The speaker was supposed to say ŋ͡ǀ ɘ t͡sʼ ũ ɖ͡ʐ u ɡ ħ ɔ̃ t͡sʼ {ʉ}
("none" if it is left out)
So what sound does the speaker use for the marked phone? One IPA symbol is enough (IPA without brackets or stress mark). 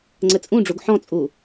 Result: u